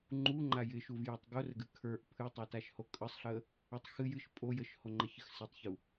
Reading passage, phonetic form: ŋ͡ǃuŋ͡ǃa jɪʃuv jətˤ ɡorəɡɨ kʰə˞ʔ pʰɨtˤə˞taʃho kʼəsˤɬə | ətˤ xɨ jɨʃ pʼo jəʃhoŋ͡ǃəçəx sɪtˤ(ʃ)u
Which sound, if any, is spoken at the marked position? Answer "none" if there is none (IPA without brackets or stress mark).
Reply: ç